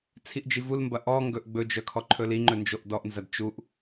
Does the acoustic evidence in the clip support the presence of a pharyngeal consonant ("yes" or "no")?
no